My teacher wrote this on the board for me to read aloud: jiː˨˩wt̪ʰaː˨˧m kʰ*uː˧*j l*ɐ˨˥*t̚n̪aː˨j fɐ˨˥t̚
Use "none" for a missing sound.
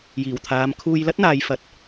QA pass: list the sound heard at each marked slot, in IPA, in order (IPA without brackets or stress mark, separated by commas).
uː˧, ɐ˥